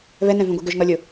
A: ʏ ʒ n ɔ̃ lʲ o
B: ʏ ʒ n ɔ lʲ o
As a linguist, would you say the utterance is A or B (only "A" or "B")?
B